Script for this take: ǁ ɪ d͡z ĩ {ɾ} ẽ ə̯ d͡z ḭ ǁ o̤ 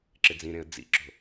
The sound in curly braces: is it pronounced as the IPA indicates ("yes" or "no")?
yes